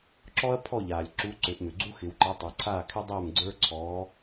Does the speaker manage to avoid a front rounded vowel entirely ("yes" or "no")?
no